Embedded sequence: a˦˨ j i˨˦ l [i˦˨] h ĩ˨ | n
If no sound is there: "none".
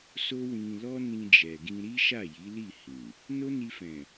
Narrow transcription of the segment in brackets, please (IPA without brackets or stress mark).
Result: i˦˨